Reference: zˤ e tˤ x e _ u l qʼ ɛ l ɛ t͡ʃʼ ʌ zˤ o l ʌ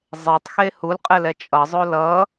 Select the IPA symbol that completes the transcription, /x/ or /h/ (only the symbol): h